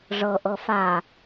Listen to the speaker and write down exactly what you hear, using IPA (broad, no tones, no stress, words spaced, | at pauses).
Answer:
ʐɤʔɤ fa